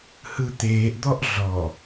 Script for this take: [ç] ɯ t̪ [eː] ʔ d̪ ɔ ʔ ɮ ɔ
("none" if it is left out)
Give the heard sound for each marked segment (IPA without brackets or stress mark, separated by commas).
h, eː